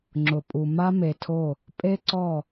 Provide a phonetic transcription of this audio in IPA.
ŋ͡ǁ ʊ˨ pʼ u˨ m a˦ m e˨ tʰ o˦˨ | pʼ e˦ ǀ ɔ˦˨

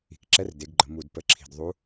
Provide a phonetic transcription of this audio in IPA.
i̤˨˩ k ǁ ɛ˧˥ r d e˩˧ ɡ ɡ͡ǃ ə˩˧ m u˨˩ d p ə˨˩ ǁʰ i̤˨˩ d ðˤ u˧˥

